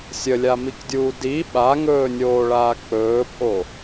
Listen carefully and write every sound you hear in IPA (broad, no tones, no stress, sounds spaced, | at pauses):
sʲ ə lʲ a m i k dʲ uː d i ɓ a ŋ ɵː nʲ oː ɭ aː k͡p ɵː pʼ o